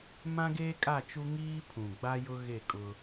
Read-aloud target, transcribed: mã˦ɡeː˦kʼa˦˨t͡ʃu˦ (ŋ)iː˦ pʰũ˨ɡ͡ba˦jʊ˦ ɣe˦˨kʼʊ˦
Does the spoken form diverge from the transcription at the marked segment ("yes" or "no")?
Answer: no